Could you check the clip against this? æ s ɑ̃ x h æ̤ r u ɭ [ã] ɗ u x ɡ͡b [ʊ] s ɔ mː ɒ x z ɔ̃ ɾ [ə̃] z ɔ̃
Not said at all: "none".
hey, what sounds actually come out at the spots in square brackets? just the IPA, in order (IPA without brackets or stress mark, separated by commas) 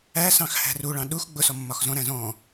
ɑ̃, ʊ, æ̃